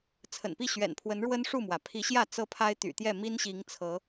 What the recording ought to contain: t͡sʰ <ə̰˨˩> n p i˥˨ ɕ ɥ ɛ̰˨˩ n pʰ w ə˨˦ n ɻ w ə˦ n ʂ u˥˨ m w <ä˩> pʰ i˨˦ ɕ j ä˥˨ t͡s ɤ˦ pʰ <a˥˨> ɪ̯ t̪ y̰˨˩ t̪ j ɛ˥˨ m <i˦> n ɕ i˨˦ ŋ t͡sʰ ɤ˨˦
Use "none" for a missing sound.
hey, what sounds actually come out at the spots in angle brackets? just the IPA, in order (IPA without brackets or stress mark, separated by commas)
ə̰˨˩, ä˩, a˦, i˦